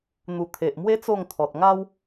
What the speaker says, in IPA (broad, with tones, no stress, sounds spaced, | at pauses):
n̪ u˨˩ t̪ʰ e˨ ʔ m w e˦ t͡s o˥˧ ŋ t̪ʰ ɔ˨ t̚ ŋ a˦ w